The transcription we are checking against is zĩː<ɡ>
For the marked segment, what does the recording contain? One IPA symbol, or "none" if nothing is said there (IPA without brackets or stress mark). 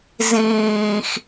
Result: x